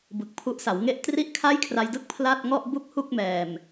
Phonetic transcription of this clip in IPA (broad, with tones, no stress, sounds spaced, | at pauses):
b ɯ˨˩ k̚ pʰ u˦˥ ʔ s a˩˦ w ŋ e˥˩ ʔ t r i˥˩ ʔ kʰ a˥˩ j kʰ r a˧ j d ɯ˥˩ k̚ pʰ l a˥˩ t̚ ŋ ɔ˥˩ ʔ b u˥˩ k̚ h u˥˩ k̚ m ɛː˨˩ m